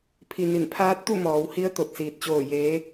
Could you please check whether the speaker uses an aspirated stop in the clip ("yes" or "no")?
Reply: yes